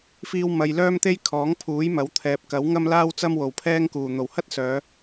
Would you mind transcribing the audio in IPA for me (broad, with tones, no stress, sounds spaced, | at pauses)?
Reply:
f iː˧ w m ɐ˨ j l œː˥ m t̪ e˥ j kʰ ɔː˨˥ ŋ pʰ uː˨˥ j m ɐ˨˥ w t̪ʰ ɛː˨ p̚ k ɐ˨˥ w ŋ ɐ˥ m l aː˥ w t͡s ɐ˥ m w o˨˩ w pʰ ɛː˥ ŋ k uː˨˩ n̪ o˨˩ w h ɐ˥ t̚ s œː˨˧